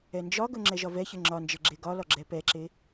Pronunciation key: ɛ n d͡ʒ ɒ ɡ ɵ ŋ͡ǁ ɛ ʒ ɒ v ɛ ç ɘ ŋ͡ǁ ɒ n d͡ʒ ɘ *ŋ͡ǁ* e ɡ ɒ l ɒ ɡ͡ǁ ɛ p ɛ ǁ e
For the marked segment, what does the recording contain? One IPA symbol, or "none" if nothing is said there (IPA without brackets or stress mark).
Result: ɡ͡ǁ